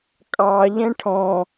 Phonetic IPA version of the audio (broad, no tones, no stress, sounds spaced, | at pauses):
kʼ ɑ ʎ ɛ̃ ʈʰ ɔ̃